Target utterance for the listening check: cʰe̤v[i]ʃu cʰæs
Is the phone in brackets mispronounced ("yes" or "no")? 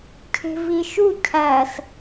no